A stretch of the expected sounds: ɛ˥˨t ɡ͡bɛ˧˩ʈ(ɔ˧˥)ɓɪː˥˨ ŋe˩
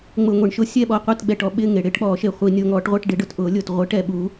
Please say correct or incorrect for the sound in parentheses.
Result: incorrect